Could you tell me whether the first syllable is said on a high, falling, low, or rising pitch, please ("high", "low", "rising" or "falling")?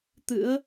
rising